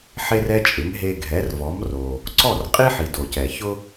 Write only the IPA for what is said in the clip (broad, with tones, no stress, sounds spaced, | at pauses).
ħ e˥ r ɛ˥ t͡ʃʼ ɪ˩˥ m ɦ e˧ ɡʱ ɛ˩˥ r v ɔ˩˥ m r o˩ | ǀ ɔ˥˩ r qʼ i˥ ħ i˩ d o˩ c ɛ˩ ç ʊ˥